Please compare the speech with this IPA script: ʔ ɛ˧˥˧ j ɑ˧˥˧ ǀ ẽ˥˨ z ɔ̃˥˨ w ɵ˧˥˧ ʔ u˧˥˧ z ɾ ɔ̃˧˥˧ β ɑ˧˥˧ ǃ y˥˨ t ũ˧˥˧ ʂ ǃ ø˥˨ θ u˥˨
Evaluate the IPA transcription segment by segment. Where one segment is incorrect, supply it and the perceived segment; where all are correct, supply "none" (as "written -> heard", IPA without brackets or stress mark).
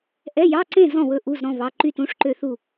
none